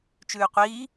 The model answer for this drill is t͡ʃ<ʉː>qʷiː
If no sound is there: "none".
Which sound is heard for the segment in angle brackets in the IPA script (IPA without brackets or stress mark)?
ʉː